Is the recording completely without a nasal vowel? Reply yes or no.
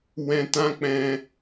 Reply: no